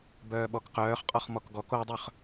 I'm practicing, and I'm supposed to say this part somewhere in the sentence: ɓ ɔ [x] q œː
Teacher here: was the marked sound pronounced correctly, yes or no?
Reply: no